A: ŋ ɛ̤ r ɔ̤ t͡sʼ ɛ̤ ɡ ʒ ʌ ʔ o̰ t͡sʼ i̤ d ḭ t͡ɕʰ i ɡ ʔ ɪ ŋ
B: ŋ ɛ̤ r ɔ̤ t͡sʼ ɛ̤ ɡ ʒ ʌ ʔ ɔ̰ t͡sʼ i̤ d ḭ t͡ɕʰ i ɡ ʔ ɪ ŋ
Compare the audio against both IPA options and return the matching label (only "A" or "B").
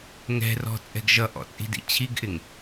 B